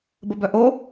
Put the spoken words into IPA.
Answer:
bəbœʔo

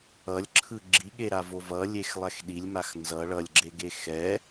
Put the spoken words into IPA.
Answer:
ʌlʲǁʰɯ ɡ͡ǁiɠeɾavo vʌlʲexlˠɛx ɗilʲmax nzʌ ɭʌlʲɡ͡ǁeɡe xɛ

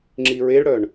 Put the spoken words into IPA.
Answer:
ŋ͡ǁiɹeɭɽœɳ

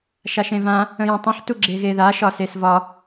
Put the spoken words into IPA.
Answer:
ʃaʃẽvã | ə̃jẽtˤə̃ħ tuɡ͡ǁeɣeða ʃɒsesvɒ

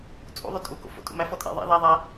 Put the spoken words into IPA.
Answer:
t͡sʼṵ ðˤøtʼu ko̰fo̰ tʼṵmæ fɔtʼɛ̰ ðˤɛ̰ ðæ ðˤæ

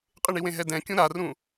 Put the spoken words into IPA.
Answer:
qʼɪɳiwẽɦɛ dɛ̃kʲũ ɾarũ

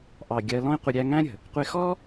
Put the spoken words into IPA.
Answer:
ʔɑ˨ ɡʲɜ˧ lɔ̃˦i̯qʷɪ˧ ɾʲæ˧ ŋæ̃˦ɾʲə̤˨ | qʷɪ˧xɔ˦

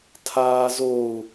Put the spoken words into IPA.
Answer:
tʰaːzou̯

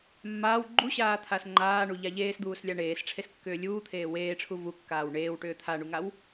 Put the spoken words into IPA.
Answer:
mːaːw ɡ͡ǃuɕaːt̪ʰas ŋ͡ǃaːɳuʎa ʎeːsd̪uːslʲa ɳeːsʈ͡ʂʰeskːʏː lʲuːt̪ʰeː weːʈ͡ʂʰu vukːaːw ɳeːwʈʏː t̪ʰaɳuŋaw

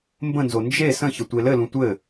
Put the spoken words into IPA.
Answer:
mbə̃nzo nd͡ʒe sə̃çə tʷelɘlũ tʷɘ

